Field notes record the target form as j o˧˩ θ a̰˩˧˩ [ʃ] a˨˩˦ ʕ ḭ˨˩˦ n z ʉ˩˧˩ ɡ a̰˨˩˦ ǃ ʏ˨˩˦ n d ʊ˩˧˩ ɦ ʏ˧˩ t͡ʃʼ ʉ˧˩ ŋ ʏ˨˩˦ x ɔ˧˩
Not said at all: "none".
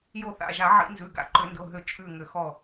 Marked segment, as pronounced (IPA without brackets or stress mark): ʒ